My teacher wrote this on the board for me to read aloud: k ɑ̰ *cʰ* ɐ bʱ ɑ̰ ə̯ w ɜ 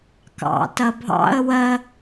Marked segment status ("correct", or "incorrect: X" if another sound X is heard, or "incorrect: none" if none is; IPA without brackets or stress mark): incorrect: t